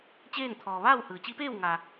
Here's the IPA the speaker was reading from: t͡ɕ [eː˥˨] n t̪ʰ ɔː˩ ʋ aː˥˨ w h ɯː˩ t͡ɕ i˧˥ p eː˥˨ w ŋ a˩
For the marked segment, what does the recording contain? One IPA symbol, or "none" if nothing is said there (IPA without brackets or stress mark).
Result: eː˥˨